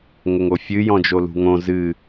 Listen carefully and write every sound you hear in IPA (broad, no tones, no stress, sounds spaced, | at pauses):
ŋ ə ŋ o fʲ ɨ j ɔ̃ d͡ʒ o l ṳ ŋ õ z ɨ